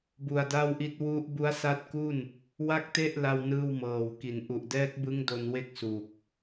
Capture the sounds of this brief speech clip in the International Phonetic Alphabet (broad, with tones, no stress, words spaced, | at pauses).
bu˧a̯da˥˩wʔi˦˥t̚ wu˦˥ʔ bu˦˥a̯sa˦˥t̚ku˥˩n | wa˥˩k̚te˥˩ʔ la˥˩wnɯː˥˩wmɤː˨˩w ki˨˩n ʔu˨˩ʔdɛː˦˥k̚bɯ˦˥ŋ do˧nwe˦˥k̚ su˨˩k̚